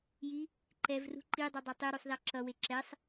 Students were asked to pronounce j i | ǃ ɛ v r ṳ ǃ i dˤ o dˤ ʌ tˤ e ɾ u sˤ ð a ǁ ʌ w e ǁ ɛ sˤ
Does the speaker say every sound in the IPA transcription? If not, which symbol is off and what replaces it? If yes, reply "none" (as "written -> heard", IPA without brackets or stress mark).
none